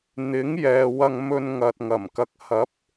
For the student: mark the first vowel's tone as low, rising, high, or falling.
rising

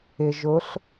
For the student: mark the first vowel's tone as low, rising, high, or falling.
low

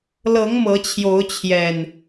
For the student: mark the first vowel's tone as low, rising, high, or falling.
rising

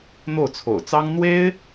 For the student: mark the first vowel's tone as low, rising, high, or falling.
falling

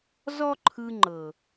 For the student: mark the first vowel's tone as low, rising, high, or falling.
high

